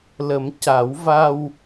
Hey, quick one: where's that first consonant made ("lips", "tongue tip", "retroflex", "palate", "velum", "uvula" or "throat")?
tongue tip